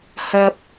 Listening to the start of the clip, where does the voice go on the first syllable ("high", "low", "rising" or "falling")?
low